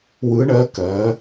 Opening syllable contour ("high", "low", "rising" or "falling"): rising